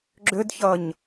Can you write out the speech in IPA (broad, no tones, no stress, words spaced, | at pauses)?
ɡ͡ǁʏdçʌɲ